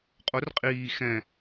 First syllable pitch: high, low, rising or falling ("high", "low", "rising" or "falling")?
rising